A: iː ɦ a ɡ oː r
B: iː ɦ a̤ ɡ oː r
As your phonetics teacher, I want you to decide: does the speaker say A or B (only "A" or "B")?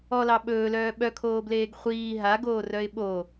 A